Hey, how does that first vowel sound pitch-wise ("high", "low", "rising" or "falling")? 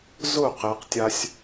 falling